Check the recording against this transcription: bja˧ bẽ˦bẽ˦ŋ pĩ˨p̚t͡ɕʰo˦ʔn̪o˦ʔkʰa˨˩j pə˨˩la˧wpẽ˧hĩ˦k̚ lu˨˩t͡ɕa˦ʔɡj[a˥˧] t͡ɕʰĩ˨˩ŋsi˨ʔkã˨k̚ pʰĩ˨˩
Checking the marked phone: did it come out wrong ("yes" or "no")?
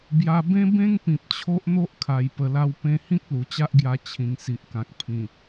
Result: yes